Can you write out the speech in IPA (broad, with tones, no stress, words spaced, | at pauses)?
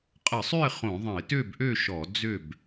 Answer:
qʼə˧˩˧sˤø˥˨ɪ̯ χõ˧˩˧ðˤə̃˧˩˧ɪ̯ tø˥˨bʔø˥˨ʃɔ˧˩˧ d͡zø˥˨b